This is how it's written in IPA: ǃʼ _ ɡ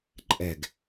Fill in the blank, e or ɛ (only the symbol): ɛ